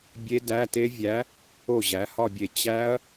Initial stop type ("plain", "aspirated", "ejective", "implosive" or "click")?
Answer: plain